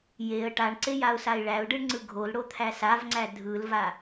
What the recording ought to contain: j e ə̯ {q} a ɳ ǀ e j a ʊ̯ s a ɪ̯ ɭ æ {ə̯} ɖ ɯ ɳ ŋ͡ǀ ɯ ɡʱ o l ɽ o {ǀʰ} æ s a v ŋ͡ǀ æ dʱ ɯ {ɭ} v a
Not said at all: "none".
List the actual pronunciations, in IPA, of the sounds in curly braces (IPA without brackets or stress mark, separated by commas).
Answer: ʈ, ʊ̯, t̪ʰ, l